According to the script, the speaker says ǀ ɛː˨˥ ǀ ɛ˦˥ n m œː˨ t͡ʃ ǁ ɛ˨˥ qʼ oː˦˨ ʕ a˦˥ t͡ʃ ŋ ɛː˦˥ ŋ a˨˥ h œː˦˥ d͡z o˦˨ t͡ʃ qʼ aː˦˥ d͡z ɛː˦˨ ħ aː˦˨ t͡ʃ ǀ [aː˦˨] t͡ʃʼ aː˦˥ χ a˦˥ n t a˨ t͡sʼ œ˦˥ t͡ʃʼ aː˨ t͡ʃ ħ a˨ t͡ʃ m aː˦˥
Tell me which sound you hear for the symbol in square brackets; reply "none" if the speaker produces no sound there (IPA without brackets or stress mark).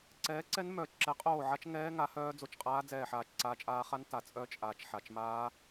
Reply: aː˦˥